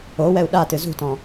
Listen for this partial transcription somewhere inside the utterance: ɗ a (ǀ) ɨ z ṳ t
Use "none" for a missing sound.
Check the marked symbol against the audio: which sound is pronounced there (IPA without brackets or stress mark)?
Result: t